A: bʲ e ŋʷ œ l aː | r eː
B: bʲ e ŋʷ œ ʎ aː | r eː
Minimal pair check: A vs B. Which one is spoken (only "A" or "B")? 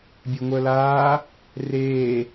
A